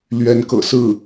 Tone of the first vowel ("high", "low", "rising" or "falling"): rising